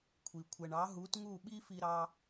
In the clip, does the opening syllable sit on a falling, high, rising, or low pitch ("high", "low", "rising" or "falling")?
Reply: low